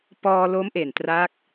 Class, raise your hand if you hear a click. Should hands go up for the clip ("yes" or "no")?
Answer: no